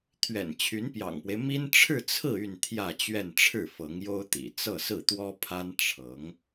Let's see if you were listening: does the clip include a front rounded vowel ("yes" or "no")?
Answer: yes